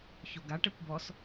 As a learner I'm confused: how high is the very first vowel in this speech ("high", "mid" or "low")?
mid